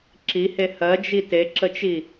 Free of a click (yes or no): no